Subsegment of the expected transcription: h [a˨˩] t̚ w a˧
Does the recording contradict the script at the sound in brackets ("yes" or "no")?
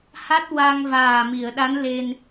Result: yes